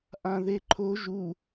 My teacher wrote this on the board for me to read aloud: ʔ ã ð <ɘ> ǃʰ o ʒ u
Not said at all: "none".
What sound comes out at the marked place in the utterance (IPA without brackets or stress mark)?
e